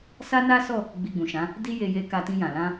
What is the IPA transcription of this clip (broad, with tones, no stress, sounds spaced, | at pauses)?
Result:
s a˦ n a˦ s ɔ˦˨ | ɡ͡b i˧ ɡ͡b ũ˨ ʃ ã˨˦ | d i˦ j e˧ j e˧ k a˧ t ĩ˧ j ã˨ l ã˧